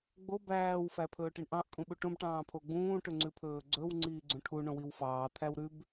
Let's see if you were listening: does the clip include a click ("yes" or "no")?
yes